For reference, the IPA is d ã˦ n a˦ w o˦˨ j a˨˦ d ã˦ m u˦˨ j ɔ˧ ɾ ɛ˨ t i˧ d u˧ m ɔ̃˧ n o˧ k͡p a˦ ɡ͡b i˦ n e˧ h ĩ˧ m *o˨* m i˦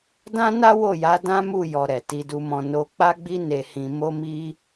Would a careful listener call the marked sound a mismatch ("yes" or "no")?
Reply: yes